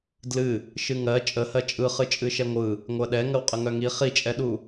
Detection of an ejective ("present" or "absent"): present